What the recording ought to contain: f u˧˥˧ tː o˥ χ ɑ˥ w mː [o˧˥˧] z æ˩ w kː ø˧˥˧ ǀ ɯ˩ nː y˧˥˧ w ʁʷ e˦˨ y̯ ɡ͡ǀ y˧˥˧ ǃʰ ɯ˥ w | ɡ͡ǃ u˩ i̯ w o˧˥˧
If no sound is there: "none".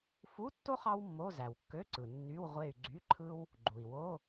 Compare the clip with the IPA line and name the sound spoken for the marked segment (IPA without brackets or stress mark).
o˧˥˧